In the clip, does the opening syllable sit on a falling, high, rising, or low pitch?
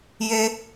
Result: low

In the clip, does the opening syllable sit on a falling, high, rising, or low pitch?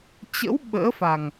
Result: rising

